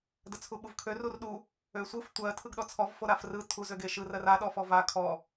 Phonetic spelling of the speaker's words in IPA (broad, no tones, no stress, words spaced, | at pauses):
dət͡sʰuɓuvkʰø rurɗu | øsʷɯf tʷɜ tʰɯɡɗɔt͡sʰɔv foɾafrɯ tʰu zøɡeʃɯ rɜra ɗɔfɔva kʰɔ